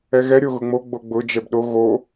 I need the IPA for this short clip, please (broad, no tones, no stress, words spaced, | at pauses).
ɛɣɛ ɾʲoɣʊŋ͡mo ɡ͡boɡ͡bʊ d͡ʒɛbɗo ɣo